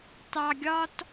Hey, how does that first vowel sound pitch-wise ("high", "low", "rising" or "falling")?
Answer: low